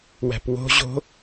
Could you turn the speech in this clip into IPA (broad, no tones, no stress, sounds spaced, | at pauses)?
w æ̤ p w o̤ ʑ o̤